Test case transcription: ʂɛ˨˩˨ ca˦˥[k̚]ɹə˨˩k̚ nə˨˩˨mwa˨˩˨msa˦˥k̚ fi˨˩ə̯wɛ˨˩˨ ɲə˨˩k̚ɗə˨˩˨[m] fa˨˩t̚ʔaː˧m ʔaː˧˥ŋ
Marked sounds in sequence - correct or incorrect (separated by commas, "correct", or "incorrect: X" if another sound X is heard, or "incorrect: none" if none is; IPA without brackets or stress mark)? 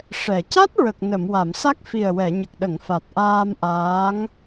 incorrect: t̚, incorrect: ŋ